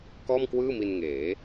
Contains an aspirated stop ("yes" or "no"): no